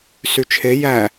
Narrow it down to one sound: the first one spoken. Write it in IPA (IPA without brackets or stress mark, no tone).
s